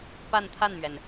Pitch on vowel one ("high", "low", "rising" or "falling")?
falling